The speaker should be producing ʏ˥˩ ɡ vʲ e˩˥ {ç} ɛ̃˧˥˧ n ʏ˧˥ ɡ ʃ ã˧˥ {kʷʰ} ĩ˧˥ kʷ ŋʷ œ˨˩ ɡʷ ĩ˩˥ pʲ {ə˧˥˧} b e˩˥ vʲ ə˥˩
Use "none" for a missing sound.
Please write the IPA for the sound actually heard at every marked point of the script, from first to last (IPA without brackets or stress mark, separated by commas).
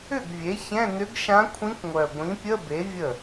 ç, kʷʰ, ə˧˥˧